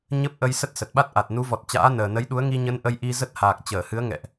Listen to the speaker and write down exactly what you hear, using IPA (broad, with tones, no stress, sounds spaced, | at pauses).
ɲ ə˦˥ p̚ ʔ ə˧ j s ə˦˥ t̚ s ə˨˩ t̚ ɓ a˦˥ t̚ ʔ a˨˩ t̚ n u˨˦ v ɔ˨˩ t̚ t͡ɕ a̰ː˧˥ n əː˨˩ n ə˨˦ j ɗ u˨˦ ə̯ ŋ i˧ ɲ ə˨˦ n ʔ ə˧ j ʔ i˧ z ə˦˥ t̚ h aː˨˩ k̚ t͡ɕ əː˧˩ h ɨ˨˦ ə̯ ŋ ɛ̰˧˨ ʔ